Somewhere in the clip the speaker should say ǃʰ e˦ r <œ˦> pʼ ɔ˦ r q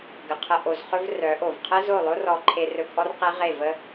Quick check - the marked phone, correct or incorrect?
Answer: incorrect: ɵ˦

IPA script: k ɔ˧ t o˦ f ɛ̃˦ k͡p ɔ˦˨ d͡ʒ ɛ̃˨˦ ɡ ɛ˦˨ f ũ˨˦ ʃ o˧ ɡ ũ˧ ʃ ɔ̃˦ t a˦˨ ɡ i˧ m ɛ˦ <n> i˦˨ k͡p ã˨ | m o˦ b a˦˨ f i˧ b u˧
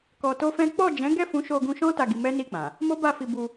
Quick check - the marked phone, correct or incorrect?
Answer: correct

